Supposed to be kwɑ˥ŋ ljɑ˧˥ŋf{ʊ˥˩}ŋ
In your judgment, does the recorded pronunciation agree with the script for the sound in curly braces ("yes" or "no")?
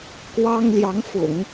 no